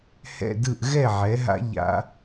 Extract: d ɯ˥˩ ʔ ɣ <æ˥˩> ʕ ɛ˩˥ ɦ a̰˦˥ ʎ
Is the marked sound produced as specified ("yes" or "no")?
no